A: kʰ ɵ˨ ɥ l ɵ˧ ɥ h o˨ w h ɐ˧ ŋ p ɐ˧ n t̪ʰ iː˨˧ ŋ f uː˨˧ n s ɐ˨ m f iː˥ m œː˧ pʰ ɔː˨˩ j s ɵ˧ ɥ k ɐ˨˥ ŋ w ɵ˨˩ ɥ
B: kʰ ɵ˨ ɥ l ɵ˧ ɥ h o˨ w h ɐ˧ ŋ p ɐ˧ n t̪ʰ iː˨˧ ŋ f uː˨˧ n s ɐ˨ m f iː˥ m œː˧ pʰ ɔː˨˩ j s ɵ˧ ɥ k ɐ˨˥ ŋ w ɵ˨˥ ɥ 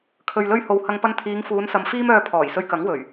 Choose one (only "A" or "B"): A